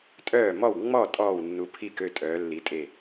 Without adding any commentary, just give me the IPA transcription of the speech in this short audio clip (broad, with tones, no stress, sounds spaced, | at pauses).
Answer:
tʼ œː˧˩ m ɔ˧˩ w ŋ͡m ɔ˧˩ tʼ ɔː˧˩ w nː u˩˧ pʰ i˧˩ k ø˧˩ tʼ œː˩˧ lː i˩˧ tʼ e˧˩